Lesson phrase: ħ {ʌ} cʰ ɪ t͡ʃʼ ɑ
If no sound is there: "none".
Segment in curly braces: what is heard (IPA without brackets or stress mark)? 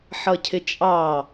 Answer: ʌ